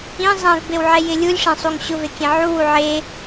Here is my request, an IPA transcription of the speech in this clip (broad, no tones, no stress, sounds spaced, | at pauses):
ĩ zˤ ẽ v b e w ʕ ɛ j ɪ lʲ u lʲ ʂ ẽ sˤ u ŋ ɕ ʊ v e kʲ ẽ ʕ u w u ʕ e